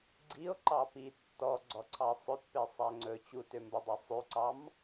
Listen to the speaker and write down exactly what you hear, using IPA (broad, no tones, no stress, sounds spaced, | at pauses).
ɡ͡ǀ i o̯ ǃ ɑ p i tː ɔ ɡ͡ǀ ɔ ǀʰ ɑ sˤ ɵ t p e sˤ æ ŋ͡ǀ ɵ t͡ɕ u t ø m b ɵ dˤ ø sˤ ʉ ǀ ɑ m